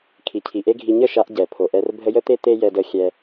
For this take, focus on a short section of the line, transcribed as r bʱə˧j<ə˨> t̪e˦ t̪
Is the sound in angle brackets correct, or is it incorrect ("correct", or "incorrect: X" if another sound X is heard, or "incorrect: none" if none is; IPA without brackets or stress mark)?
incorrect: ə˦